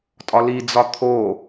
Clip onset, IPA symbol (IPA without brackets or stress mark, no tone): tʼ